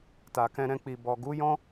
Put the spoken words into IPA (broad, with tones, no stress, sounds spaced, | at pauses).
t a˨ k ɛ̃˧ ɾ ɛ̃˧ k͡p i˨ b ɔ˨ ɡ u˨˦ j ɔ̃˦